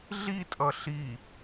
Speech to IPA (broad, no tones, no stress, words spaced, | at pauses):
ɮitʼʌ ɬi